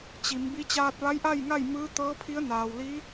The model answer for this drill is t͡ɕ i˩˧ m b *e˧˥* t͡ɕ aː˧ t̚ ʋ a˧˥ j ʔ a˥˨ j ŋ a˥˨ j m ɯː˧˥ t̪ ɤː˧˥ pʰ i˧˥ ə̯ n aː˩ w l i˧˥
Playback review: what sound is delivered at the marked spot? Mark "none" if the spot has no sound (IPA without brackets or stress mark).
i˧˥